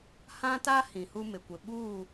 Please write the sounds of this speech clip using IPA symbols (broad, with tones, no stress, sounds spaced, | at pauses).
h ã˦ t a˦ h ĩ˨ h u˦ m ɪ˨ kʷ ɪ˨ ɓ uː˦˨